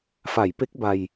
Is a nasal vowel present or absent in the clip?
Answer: absent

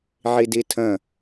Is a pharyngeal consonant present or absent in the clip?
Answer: present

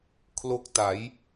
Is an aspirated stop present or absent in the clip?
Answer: present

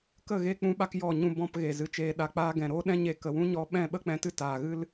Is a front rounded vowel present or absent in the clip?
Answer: absent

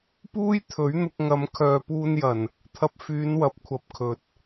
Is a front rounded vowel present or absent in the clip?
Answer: present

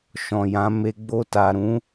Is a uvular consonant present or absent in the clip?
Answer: absent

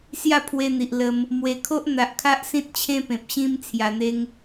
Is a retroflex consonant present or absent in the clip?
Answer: absent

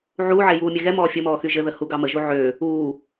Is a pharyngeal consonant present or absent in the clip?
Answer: present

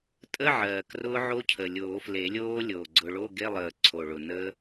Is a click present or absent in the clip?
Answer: present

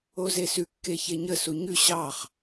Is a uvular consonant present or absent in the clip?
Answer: present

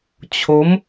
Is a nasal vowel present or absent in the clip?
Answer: absent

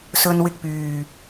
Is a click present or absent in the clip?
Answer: absent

